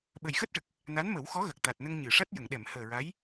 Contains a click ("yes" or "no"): no